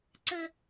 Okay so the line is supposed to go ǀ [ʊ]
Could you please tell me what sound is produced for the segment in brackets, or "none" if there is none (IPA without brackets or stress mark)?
ə